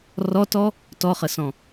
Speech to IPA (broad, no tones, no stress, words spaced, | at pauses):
rɔtɔ | tɔχəsɔ̃